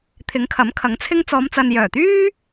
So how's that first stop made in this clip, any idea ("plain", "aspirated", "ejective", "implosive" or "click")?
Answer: aspirated